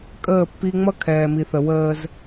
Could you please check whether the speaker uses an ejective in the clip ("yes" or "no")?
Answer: yes